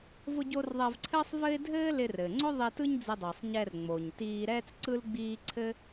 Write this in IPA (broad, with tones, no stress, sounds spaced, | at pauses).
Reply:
v ʊ˧ ɟ o˧ r ðˤ ɛ˧ v ǀʰ ɘː˥ sˤ v ɘ˥ ɪ̯ dʱ ɘː˥ l ɪ˧ r ɘː˩ ŋ͡ǀ ʊ˥ ðˤ i˧ t ɯ˥ ɲ d͡z ɪ˧ dˤ ɘː˩ sˤ ɲ ɛ˧ r ŋ͡m o˩ ɲ t iː˧ ɾ ɛː˥ t͡s ǀ ɯ˥ l ɡ͡b iː˥ ǀʰ ɘ˥